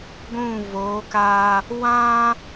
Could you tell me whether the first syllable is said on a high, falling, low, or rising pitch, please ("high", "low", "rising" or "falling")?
falling